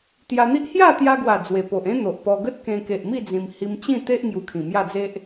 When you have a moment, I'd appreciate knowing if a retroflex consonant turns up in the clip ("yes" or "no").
no